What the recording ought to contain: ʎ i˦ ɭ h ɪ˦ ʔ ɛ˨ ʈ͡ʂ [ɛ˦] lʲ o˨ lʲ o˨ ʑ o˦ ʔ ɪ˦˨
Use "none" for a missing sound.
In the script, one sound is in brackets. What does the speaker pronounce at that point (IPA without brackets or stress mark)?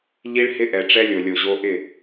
ɛ˦